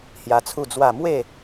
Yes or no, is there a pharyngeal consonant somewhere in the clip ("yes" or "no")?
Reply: no